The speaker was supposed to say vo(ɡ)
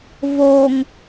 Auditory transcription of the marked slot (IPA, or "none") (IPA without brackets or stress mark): ŋ